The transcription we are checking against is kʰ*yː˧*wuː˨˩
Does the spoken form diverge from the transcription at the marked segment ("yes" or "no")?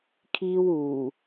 yes